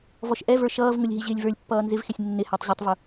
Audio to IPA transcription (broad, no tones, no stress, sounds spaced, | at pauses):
v ɔ ʃ ʔ ɛ v ə˞ ʃ ʌː v ŋ ʊ lʲ ɦ i ʑ ɪː lʲ v ə˞ lʲ pː ʌː n z ɪ v x ɪ sʲ nː ɪ h æ tˤ ʑ ʊ tˤ v ʊ